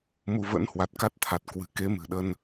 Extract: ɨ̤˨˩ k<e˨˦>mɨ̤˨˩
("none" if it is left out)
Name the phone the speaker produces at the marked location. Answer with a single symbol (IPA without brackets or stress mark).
e˨˦